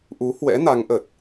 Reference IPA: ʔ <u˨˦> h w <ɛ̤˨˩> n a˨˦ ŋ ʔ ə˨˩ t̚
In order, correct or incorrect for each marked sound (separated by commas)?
correct, incorrect